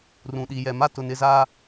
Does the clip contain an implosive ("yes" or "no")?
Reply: yes